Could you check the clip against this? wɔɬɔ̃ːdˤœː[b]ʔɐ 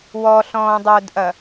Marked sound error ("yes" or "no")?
yes